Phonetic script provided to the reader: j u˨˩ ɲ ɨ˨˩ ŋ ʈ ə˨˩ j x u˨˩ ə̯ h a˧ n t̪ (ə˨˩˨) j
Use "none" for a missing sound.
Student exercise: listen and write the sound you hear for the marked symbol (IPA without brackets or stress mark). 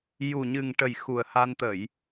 ə˨˩˨